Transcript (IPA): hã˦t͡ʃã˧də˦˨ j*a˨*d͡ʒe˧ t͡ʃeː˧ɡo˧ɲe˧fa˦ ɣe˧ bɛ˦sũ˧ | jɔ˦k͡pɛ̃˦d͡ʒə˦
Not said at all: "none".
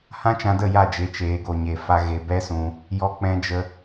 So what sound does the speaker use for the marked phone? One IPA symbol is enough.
a˦˨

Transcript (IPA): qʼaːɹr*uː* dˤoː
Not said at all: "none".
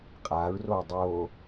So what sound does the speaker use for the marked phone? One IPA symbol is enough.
oː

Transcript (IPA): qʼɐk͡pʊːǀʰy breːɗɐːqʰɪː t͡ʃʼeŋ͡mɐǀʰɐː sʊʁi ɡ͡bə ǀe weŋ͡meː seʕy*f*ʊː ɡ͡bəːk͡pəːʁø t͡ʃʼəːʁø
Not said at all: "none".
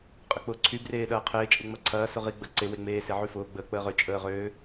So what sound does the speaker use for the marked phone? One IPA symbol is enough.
f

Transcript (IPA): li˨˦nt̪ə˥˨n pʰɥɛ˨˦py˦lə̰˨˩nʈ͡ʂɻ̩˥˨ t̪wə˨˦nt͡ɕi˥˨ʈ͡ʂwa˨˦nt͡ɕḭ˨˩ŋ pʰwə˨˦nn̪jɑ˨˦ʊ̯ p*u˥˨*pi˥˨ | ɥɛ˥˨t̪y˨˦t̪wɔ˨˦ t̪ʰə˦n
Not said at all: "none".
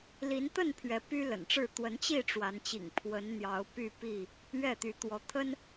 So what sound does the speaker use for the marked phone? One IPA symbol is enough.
y˥˨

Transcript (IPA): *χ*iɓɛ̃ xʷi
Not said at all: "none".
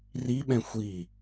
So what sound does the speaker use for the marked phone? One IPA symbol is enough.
r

